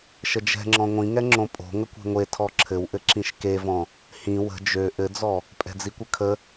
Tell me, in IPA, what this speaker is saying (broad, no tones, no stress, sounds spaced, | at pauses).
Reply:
ʃ ə d͡ʒ ɛ̤ ŋ͡ǁ ɔ̃ ŋʷ ĩ ŋ ɛ ŋ͡ǁ õ pʼ o̤ ŋ ə kʷ ɛ̤ ŋʷ e tʰ ɔ ǁʰ ɘ w ʔ ɘ ǁ ĩ ʃ k e v ɔ̃ | h ĩ w ə̤ d͡ʒ ø ʔ ɘ d͡z ɔ | pʼ ɛ̤ d͡z i kʷ ə kʰ ə